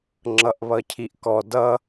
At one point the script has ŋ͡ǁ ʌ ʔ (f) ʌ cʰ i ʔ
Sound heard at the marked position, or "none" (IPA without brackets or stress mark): β